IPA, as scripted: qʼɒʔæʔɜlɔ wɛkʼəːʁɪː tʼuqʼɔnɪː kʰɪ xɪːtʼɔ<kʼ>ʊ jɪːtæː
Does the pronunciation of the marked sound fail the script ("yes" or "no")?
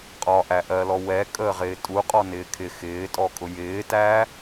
no